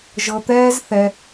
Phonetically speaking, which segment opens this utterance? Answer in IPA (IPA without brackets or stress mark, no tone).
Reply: ʒ